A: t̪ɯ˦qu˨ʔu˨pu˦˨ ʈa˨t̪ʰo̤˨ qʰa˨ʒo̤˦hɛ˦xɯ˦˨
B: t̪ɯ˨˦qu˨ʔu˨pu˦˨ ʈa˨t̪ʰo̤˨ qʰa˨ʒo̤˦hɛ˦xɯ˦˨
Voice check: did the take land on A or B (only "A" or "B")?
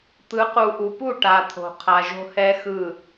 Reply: B